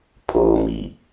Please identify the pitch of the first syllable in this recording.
low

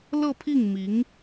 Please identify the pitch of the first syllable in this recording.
falling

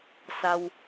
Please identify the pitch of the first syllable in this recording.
low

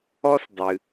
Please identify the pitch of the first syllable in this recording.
high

